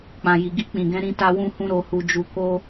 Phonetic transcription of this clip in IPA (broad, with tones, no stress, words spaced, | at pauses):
k͡pã˨ji˨ɡi˧ k͡pĩ˨ɡɛ̃˨˦ɾĩ˧ ta˧wũ˧hũ˧ ɾo˧hu˧d͡ʒu˧ ko˦